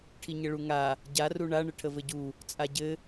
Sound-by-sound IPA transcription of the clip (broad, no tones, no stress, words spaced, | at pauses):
ʈʰiɲəɭuŋa | ɟa ruɳa ɳəʈʰəvɘɟu | t͡sʼaɟɘ